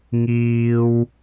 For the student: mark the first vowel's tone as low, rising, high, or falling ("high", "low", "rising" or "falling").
high